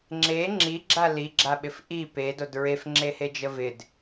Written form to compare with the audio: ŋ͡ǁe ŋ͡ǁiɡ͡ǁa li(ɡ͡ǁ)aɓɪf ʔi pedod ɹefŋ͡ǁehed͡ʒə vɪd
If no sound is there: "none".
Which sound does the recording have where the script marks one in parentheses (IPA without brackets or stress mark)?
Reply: ɡ͡ǁ